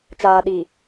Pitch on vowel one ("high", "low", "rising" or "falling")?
low